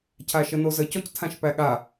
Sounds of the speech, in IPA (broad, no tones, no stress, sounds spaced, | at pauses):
cʰ a ʃ ə n o z ə c ɔ c tʰ ã ʃ p æ ɠ a